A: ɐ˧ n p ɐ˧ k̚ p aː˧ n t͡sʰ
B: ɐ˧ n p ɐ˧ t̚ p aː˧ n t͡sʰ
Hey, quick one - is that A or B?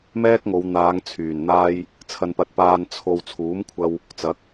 B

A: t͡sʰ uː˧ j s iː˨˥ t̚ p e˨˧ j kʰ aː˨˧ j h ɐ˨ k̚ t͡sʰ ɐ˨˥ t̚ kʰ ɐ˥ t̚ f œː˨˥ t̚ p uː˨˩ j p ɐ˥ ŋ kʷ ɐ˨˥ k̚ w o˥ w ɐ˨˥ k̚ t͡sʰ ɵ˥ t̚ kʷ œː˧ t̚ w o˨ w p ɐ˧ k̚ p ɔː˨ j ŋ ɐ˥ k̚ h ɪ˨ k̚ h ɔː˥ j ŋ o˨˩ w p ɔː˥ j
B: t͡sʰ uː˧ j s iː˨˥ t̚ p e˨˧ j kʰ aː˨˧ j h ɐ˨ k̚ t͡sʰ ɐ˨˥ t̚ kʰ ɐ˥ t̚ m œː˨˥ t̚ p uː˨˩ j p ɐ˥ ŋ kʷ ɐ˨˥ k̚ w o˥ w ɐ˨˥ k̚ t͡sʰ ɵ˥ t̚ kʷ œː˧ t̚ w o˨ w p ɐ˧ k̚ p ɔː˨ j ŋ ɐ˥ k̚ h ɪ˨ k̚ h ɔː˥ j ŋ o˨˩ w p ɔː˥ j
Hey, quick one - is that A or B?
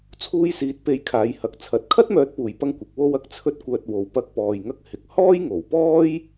B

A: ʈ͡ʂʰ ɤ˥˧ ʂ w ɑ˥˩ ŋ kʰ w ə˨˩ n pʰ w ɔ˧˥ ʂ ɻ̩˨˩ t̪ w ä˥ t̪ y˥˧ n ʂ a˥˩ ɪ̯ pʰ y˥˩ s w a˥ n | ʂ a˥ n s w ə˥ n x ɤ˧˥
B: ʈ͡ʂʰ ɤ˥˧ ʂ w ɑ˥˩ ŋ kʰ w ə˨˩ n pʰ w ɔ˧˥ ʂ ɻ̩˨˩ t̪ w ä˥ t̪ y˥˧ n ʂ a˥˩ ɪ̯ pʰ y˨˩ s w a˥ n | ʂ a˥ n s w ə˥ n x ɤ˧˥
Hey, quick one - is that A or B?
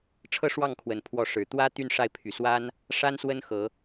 B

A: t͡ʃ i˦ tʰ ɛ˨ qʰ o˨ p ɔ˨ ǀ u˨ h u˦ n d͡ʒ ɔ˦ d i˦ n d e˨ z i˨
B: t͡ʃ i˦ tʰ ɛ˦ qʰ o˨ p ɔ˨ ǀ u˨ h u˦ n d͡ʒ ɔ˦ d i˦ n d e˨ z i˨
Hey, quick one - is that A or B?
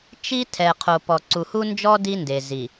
A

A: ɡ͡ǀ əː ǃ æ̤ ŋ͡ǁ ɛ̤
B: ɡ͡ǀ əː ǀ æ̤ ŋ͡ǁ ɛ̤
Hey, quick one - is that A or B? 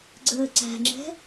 B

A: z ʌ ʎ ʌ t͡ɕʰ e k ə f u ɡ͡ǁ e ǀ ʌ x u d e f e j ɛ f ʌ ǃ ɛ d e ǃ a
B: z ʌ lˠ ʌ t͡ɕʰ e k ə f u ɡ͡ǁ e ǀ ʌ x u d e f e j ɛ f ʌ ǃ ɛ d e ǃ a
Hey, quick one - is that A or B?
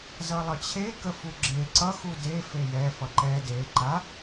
B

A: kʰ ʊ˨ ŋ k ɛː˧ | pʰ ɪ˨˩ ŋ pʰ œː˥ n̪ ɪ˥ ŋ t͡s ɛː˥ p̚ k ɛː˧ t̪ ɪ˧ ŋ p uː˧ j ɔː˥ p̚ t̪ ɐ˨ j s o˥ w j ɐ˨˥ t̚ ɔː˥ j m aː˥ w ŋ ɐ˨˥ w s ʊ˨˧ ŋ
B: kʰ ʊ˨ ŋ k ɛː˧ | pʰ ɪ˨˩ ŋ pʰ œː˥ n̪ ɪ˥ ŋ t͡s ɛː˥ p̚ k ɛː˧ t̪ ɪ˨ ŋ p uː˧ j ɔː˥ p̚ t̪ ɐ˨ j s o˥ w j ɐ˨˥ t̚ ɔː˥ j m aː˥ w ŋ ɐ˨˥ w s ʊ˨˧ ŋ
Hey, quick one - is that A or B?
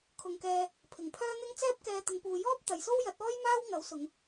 A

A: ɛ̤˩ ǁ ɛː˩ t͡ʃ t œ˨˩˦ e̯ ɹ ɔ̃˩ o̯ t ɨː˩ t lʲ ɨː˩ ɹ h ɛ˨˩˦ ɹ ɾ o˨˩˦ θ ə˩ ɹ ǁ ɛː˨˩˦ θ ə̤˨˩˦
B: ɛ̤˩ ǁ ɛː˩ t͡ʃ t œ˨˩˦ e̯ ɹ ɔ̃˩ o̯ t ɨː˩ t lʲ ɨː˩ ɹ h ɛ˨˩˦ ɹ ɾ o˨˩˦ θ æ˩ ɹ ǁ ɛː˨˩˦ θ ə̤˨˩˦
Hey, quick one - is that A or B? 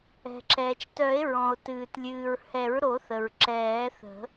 A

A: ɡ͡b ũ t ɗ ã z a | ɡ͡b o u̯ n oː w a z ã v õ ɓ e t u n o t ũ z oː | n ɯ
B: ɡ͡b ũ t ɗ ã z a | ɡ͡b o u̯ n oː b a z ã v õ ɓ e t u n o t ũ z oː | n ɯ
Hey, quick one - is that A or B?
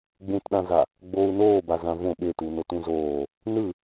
B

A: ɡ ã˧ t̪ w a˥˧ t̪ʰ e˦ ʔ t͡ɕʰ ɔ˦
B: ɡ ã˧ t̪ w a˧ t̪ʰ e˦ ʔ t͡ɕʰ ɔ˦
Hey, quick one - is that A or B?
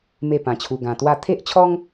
A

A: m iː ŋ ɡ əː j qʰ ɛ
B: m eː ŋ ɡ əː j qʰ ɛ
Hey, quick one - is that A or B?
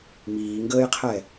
A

